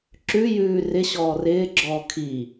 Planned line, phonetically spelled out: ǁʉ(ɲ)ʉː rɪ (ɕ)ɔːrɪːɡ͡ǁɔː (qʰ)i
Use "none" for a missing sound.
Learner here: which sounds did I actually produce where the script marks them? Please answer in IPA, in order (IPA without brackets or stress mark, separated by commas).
j, ɕ, kʰ